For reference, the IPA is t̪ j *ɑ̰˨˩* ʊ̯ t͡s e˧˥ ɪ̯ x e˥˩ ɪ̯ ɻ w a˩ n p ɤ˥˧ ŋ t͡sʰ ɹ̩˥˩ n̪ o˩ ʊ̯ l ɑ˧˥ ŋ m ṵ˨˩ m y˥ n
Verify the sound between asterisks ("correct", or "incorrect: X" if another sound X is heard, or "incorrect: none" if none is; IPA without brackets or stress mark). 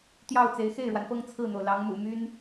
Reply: incorrect: ɑ˥˩